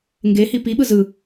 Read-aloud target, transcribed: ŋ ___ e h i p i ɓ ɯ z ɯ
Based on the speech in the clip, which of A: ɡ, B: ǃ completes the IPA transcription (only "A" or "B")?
A